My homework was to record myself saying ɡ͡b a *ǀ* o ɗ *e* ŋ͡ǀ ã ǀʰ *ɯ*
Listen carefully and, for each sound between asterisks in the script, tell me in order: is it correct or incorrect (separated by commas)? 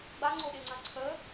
incorrect, correct, incorrect